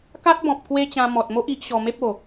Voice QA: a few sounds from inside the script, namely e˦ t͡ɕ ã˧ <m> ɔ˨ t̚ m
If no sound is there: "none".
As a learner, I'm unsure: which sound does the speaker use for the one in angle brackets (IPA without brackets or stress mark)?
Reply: m